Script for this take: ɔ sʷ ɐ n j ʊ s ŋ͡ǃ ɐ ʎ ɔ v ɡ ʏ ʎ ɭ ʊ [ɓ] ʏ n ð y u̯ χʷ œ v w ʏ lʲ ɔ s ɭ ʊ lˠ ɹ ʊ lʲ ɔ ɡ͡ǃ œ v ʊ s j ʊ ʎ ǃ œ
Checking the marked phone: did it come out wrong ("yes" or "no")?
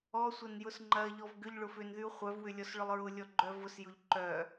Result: yes